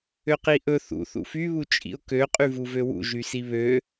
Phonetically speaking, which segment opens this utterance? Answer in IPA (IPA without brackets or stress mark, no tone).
ø